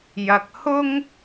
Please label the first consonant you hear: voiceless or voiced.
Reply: voiced